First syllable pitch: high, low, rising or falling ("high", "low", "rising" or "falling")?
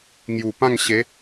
low